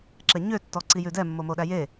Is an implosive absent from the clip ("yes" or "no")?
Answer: no